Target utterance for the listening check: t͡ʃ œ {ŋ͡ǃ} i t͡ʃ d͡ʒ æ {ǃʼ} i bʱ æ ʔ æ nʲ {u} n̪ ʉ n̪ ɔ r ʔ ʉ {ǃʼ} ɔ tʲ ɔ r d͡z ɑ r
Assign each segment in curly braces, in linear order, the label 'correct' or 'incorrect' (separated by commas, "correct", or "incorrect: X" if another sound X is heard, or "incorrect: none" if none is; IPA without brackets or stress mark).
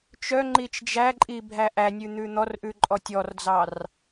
correct, correct, incorrect: ʉ, correct